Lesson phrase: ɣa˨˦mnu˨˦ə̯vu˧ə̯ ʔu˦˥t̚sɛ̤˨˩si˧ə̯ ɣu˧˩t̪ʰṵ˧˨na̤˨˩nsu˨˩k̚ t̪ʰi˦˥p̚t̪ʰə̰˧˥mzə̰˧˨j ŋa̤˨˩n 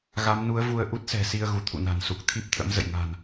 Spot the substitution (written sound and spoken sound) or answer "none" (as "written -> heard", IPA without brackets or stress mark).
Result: none